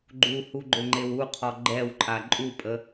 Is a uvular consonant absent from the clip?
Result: no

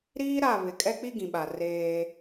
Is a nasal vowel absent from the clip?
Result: no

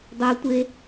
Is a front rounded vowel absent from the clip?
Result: no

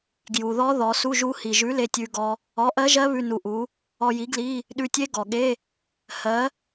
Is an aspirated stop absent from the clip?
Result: yes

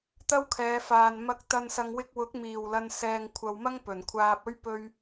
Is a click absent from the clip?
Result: yes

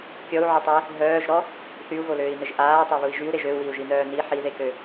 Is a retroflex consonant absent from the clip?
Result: yes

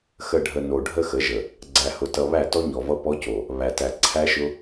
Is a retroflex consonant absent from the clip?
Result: no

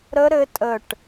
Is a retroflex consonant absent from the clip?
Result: no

